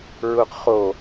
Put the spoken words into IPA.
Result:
ɹuqχo

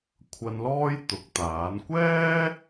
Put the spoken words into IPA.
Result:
kʷʰɐ˧nlɔː˥j t̪ʊ˨˥k̚t̪aː˨˥n kʷɛː˥

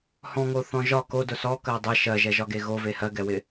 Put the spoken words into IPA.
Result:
hɔ̃ŋoθɔ̃ ʒɒ kodʊ sɔkɜ dˤɪ ʃɜʒɛʒɒɡe ɣove hɜɡɛwɪ

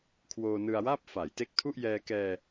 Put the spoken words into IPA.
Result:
kʰwoː˧nɯ˧a̯waː˥˩p̚ fa˩˦j te˦˥k̚tʰu˥˩ʔjɛː˧kɛː˧

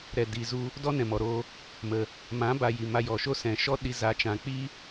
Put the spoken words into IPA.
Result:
ɾɛ˨di˨zu˧ | dɔ˦nɛ̃˨mɔ˨ɾo˧ | mə˨ | mã˨˦ba˨ ji˨ma˧jɔ˨ʃo˦ sɛ̃˨ʃɔ˦ ɗi˧ za˨˦t͡ʃã˨k͡pi˦

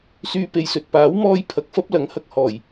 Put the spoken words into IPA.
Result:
syː˧pe˨jsɵ˨t̚ paː˨˥wmɔː˧jpʰɐ˨k̚ fɐ˥p̚lɐ˨˥ŋhɐ˧k̚ hɔː˨˩j

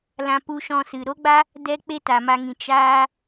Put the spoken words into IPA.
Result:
lã˧pu˧ ʃɔ̃˧sɨ˨ ɾo˦ɡ͡ba˦ | dɛ˦ k͡pe˦ta˨ma˧ŋĩ˨ t͡ʃaː˦

